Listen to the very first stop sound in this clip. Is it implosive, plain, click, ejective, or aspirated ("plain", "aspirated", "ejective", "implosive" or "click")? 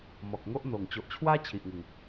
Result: plain